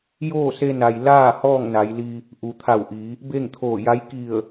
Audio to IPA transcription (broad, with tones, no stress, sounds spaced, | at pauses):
j oː˥˨ s e˧ n a˩ j l aː˥˨ h ɔː˥˨ ŋ n a˩˧ j l i˧ | ʔ u˩˧ t̪ʰ a˧˩ w ʔ i˩˧ | b e˥˨ ŋ t̪ʰ oː˧˩ j a˧˥ j k i˧˩ ə̯